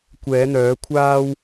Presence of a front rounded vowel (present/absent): present